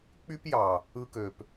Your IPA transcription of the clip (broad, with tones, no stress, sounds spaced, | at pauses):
k͡p y˦ p j ɑ˨ | ɯ˧ k ø˨ p